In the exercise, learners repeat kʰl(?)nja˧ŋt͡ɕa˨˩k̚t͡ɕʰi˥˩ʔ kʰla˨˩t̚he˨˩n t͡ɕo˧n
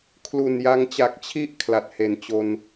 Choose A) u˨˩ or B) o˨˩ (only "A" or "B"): A